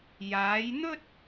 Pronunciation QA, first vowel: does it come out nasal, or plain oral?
oral